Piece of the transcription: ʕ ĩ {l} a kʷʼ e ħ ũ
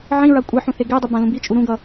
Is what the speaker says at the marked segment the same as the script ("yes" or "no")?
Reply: no